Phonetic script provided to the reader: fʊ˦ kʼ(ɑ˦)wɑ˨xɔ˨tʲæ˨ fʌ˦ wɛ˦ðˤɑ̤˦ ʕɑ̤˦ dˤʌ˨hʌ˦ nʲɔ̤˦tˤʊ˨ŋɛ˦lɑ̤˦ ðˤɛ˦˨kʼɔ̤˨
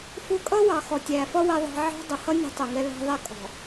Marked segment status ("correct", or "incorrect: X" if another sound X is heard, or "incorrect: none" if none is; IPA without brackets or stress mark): incorrect: ʌ˦